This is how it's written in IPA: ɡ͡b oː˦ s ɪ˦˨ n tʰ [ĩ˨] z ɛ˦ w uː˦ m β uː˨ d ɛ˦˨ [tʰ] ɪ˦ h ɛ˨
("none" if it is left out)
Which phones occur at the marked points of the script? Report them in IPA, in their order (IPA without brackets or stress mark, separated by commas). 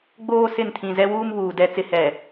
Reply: ĩ˨, t͡s